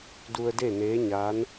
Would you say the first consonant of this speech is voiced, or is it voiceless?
voiced